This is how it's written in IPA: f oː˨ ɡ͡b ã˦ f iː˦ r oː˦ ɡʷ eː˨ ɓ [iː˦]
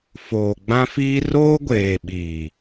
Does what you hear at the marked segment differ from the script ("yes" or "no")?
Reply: yes